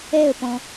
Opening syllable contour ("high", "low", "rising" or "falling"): falling